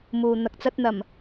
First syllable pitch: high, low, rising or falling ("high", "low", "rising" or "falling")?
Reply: low